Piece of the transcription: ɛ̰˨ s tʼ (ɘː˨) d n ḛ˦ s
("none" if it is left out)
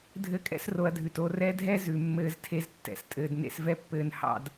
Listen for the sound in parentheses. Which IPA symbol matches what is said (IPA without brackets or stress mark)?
ɘː˨